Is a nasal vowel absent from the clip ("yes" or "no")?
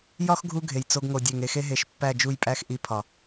yes